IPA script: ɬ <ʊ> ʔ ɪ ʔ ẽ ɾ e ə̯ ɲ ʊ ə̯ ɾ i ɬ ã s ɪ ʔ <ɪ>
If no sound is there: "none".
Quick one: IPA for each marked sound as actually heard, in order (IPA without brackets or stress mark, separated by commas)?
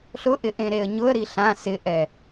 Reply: ʊ, ɛ